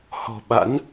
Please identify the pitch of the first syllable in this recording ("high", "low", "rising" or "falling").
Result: low